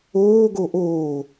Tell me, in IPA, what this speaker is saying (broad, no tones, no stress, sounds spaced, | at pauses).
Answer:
oː ɡ o ʔ oː